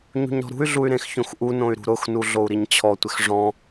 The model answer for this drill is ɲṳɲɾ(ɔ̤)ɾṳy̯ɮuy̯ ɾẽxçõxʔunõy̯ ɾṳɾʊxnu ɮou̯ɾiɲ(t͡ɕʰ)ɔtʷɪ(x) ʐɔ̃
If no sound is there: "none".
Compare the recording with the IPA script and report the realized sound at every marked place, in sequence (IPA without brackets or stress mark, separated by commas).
ɔ̤, t͡ɕʰ, x